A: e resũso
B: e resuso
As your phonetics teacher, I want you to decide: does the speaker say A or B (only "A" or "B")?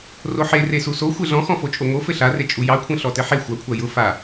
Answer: B